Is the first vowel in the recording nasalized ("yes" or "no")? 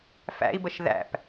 no